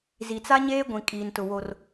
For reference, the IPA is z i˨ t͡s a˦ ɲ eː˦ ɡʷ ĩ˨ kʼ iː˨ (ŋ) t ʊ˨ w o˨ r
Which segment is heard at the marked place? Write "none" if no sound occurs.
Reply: n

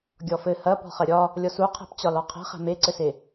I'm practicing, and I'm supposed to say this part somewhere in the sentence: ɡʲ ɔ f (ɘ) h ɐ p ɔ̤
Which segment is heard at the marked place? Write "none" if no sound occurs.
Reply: ɘ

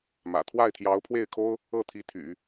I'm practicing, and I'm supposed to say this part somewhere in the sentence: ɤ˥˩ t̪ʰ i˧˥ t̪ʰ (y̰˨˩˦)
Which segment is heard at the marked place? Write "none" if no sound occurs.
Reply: y̰˨˩˦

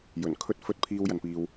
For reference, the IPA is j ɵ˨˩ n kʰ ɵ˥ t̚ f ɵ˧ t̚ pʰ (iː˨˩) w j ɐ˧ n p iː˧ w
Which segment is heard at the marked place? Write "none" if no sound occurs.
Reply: iː˥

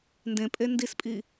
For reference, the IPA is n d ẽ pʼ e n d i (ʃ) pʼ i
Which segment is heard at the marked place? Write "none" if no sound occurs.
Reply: s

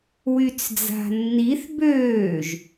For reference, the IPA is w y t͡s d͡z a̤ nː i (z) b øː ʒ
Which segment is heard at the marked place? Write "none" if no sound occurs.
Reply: θ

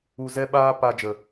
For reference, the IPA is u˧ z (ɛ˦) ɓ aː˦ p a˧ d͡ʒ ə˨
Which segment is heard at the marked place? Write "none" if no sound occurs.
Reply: ɛ˦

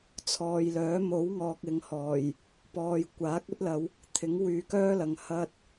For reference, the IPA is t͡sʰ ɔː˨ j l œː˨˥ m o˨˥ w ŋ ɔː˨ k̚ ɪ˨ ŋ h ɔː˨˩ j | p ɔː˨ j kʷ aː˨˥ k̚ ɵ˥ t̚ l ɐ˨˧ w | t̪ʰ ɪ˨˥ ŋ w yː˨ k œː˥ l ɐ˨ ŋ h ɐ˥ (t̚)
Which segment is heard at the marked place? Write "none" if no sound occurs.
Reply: t̚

